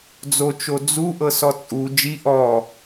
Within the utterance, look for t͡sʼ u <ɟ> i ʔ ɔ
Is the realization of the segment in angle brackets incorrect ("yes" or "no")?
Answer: yes